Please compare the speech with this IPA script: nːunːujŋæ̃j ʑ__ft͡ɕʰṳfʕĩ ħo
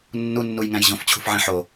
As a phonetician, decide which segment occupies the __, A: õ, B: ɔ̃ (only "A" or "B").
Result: A